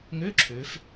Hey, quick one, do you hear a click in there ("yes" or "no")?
yes